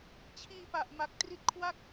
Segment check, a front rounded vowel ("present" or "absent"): absent